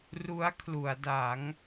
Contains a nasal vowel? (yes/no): no